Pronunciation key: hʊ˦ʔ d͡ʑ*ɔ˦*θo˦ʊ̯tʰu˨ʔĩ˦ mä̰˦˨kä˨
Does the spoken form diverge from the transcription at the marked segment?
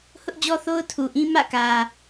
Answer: no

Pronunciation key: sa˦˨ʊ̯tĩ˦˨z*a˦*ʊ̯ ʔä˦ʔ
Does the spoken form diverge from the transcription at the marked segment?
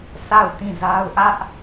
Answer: no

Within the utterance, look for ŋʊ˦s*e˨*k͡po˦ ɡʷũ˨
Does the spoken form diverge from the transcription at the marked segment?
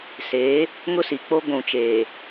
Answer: yes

